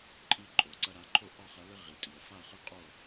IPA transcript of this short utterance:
ǃʼ i˧ ǃʼ o˩ ǀ ɐ˧ ɾ a˩˥ ǃʰ o˥˩ ʔ ɔ˥˩ χ ɐ˩˥ l ɘ˥ ʁ i˩ tʼ i˩ ə̯ f a˥˩ χ ɨ˥˩ qʼ o˥˩

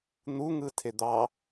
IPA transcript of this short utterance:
n̪ u ŋ ɯ tʰ e d̪ ɑ

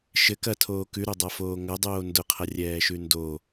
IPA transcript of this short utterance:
ʃ ɘ k ɐ tʰ oː k ʉ ɾ o dˤ a f oː ŋ ɐ dˤ oː n d ʊ qʰ ɐ rʲ ɛː ʃ ʉ n d o

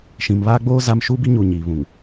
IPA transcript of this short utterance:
ʃ ĩ˨ m β aː˦ ɡ͡b oː˦ z a˦ m ʃ uː˦ b i˦ ɲ uː˨ ɲ iː˨ β ũ˨ ŋ

